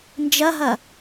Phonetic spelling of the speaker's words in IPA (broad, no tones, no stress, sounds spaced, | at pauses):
n d͡ʒ ɐ ɦ ɐ